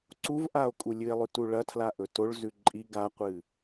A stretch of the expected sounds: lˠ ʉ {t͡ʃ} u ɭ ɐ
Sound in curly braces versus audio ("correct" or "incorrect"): incorrect